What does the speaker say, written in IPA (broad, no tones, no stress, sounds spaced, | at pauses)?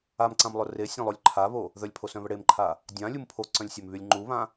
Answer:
a m ǀ ã m lˠ ʊ r e sʲ ã lˠ o lʲ ǃʰ a β o | ð œ lʲ pʰ o s œ̃ β ə ɽ e m ǃʰ a | dʲ ã lʲ u m pʰ o ǀ œ̃ lʲ sʲ œ m β y lʲ ŋ͡ǃ u β ã